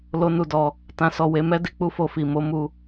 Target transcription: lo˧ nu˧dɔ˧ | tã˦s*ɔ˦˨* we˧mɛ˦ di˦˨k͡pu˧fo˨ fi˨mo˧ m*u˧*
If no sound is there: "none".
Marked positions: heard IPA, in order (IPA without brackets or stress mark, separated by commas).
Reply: ɔ˦˨, u˧